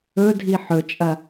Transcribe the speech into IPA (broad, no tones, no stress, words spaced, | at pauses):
ɵdʱi ħɵt͡ʃʼɐ